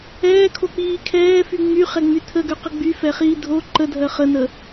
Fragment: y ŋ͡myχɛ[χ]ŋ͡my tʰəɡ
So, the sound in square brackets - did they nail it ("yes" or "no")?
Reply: no